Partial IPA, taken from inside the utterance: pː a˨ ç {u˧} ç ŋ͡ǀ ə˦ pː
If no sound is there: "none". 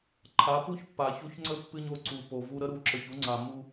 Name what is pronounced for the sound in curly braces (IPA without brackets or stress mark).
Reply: u˧